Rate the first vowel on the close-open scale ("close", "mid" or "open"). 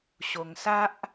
mid